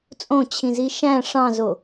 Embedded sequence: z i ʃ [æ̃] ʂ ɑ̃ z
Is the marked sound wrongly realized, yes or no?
no